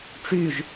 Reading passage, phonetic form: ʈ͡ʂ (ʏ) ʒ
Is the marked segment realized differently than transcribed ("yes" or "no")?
yes